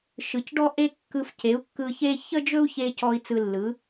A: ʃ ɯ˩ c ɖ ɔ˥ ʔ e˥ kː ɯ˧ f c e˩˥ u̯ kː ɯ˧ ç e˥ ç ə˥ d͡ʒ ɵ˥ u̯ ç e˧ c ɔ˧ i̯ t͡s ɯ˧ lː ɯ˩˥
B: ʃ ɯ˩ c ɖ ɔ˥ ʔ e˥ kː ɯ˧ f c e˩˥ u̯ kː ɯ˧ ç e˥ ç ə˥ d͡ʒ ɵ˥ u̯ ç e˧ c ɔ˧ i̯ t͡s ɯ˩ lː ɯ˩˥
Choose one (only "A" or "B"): A